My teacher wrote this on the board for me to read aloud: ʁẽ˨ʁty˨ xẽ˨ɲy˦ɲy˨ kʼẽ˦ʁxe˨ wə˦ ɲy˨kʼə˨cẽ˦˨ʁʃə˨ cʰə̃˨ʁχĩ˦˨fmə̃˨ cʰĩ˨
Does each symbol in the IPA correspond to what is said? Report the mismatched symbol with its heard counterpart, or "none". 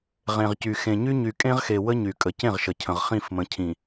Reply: t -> c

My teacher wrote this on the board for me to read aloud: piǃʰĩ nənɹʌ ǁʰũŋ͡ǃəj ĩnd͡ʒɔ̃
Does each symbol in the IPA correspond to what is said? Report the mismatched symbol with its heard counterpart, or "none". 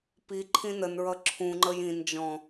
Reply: none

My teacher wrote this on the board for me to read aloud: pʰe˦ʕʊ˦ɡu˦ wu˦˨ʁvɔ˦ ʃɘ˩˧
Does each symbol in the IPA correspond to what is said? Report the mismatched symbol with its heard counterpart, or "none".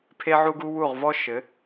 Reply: ʊ˦ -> u˦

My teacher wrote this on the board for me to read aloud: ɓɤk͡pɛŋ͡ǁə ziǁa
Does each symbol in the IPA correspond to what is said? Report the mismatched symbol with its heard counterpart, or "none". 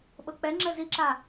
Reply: none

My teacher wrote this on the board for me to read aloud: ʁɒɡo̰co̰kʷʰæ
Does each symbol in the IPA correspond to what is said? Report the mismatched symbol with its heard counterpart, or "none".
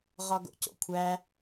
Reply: none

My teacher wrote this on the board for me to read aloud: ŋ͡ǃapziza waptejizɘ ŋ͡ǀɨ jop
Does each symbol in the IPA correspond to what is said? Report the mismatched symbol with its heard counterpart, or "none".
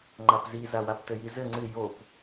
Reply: e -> ɘ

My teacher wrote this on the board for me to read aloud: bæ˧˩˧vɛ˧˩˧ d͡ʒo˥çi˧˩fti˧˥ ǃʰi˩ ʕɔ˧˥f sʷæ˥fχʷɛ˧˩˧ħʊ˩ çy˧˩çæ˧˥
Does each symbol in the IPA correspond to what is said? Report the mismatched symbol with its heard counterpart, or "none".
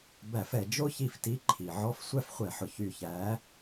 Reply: v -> f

